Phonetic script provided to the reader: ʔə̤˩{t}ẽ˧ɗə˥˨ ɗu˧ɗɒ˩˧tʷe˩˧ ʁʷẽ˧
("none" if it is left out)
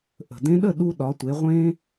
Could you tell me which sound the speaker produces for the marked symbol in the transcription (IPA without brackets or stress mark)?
d